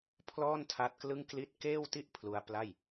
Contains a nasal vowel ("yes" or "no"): no